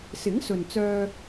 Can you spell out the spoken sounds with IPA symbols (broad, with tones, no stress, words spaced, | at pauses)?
sɪ˨˥ŋsɵ˨nt͡sœː˧